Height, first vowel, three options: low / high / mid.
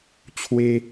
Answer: mid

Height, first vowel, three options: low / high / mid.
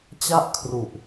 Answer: low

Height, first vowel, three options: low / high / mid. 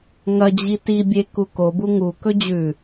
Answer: low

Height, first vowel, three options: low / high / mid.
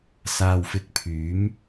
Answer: low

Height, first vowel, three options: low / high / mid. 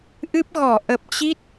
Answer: high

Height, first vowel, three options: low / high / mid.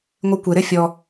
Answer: high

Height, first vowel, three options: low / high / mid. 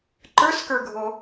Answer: mid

